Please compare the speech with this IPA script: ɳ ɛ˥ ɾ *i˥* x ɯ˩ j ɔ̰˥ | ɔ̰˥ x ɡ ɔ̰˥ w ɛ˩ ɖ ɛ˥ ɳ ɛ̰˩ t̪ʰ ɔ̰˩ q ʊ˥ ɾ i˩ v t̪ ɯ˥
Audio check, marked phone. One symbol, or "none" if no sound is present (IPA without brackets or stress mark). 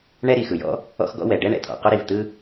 i˩